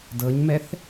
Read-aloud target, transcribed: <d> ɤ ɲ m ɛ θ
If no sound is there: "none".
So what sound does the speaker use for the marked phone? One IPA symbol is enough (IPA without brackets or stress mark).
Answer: d